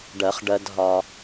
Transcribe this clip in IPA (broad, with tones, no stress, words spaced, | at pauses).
ɖɜ˨˩˦χ ɖɜ˨dɦɒ˨